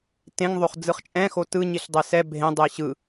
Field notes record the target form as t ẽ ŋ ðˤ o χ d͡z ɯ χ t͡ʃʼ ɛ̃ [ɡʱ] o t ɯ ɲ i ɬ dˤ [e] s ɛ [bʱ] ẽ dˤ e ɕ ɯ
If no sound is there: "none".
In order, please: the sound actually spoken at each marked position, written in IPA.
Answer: x, e, bʱ

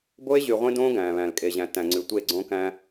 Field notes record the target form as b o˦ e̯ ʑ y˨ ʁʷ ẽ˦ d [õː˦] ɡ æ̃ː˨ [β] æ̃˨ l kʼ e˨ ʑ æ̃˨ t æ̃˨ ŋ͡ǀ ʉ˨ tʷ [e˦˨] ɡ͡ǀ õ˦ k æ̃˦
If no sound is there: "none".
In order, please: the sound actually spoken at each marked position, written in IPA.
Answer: õː˦, β, e˦˨

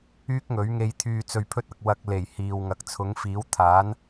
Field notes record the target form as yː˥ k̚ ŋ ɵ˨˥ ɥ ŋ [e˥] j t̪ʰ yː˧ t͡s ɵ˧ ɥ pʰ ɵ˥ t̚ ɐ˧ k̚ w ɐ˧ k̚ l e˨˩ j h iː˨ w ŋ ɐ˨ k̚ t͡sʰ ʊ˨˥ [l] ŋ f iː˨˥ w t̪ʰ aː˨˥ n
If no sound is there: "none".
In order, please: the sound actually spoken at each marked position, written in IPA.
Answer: e˧, none

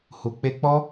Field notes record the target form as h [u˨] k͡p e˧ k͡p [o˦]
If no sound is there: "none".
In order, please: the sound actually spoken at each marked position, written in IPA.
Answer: u˨, ɔ˦

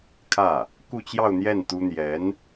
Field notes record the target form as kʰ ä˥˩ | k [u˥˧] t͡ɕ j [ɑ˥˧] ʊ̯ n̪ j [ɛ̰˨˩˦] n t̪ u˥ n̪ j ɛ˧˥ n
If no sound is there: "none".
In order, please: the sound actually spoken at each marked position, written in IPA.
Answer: u˥˧, ɑ˥˧, ɛ˥˩

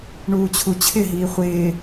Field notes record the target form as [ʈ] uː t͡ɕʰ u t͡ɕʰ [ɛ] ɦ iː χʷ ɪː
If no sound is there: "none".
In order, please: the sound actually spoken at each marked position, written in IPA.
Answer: ɳ, ɪ

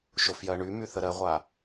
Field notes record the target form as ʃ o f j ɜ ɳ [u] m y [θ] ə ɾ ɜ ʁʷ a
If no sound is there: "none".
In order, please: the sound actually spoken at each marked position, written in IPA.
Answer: y, θ

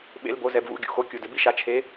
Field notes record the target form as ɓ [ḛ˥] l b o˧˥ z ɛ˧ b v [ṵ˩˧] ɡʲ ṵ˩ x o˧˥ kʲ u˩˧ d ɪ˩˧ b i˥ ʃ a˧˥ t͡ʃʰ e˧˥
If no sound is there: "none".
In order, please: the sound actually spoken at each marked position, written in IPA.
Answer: ḛ˧˥, ṵ˧˥

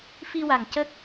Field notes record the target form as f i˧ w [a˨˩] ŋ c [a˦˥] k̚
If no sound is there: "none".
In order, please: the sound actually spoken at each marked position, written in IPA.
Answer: a˨˩, ə˦˥

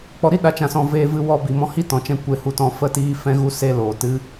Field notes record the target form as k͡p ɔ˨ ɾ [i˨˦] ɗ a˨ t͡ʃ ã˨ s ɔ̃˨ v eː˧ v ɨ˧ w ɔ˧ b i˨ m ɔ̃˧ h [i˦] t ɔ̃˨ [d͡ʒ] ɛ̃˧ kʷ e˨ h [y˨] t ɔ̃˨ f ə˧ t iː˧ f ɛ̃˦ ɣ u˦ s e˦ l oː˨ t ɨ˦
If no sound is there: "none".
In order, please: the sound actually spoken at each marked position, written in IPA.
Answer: i˦, i˦, t͡ʃ, u˨

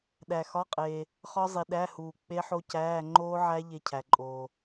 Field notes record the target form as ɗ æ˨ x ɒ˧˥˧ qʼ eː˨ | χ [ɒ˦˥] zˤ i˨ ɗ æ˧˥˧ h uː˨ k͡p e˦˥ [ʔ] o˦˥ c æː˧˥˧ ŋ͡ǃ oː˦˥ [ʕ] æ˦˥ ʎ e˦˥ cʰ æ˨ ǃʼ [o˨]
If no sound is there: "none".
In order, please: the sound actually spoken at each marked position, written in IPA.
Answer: ɒ˦˥, ħ, ʕ, oː˨

